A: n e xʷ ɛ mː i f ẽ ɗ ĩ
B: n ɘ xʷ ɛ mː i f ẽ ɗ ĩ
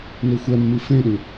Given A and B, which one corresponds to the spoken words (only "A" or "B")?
A